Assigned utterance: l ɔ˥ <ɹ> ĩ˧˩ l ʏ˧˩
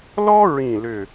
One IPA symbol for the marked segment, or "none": ɹ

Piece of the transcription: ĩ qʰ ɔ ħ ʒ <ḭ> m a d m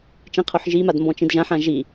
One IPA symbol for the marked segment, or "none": i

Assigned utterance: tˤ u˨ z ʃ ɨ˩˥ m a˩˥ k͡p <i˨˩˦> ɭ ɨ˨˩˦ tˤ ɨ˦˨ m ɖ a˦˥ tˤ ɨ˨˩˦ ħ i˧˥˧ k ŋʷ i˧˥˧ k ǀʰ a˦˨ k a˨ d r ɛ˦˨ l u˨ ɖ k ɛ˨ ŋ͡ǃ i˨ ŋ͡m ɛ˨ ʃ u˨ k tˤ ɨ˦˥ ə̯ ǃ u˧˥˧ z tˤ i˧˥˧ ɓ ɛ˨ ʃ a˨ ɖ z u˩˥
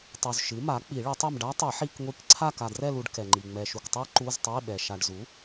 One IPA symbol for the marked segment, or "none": i˨˩˦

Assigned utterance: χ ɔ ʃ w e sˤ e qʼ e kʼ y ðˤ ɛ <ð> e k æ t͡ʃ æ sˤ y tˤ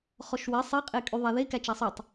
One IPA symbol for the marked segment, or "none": ð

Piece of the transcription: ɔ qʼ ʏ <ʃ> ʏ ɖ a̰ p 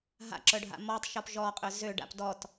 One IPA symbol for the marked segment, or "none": z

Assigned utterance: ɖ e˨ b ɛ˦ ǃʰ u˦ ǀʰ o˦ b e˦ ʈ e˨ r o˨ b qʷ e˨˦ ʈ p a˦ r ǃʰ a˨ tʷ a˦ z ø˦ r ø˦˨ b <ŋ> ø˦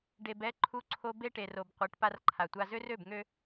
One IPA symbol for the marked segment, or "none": ŋ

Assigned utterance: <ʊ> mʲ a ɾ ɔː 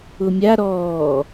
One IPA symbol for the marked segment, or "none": ʊ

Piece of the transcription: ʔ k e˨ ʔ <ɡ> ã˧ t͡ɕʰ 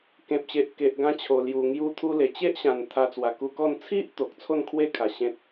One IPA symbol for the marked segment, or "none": ɡ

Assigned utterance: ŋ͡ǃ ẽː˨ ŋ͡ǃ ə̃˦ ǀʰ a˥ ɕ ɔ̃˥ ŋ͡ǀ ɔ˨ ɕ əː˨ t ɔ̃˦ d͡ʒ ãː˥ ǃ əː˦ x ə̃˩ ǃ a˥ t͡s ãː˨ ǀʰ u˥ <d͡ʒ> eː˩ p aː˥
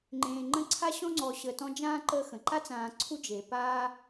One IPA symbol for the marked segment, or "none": d͡ʒ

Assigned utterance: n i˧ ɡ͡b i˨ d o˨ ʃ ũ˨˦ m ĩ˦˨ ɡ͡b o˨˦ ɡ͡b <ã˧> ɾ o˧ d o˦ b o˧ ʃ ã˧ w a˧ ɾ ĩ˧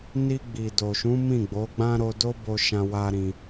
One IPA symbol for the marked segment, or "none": ã˦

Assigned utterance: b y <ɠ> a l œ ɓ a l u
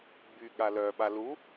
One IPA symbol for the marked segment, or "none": ɠ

